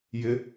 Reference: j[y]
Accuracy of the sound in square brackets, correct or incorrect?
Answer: incorrect